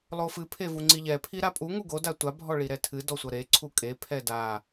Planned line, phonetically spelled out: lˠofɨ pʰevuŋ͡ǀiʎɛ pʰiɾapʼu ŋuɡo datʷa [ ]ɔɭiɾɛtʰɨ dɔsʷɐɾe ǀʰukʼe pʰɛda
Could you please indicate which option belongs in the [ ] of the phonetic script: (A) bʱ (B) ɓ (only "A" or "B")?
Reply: A